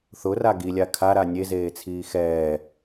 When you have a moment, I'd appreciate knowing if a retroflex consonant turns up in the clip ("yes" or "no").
no